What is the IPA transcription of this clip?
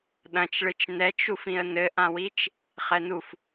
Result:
ɗɐ̃t͡ʃɭɨt͡ʃ nɛt͡ʃufĩə̯ nɘʔãwit͡ʃ | χɛnuf

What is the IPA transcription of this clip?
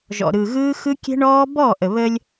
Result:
ʒɔ̰˨ɾɯ˨ɣɯː˦xɯ˦ kʲɛ̤˦ɳɔː˦ bɔ˦˨ʔə˨ βə˦lʲ

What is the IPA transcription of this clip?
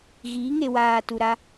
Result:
ɣiː˨˦ŋe˨waː˨ tu˨ɾa˦

